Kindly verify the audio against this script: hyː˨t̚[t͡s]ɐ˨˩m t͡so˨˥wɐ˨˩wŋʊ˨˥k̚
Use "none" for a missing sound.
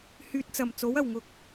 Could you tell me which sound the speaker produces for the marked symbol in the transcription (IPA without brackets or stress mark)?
t͡s